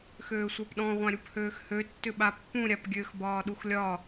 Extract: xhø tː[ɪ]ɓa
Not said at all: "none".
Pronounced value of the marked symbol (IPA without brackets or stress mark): ʏ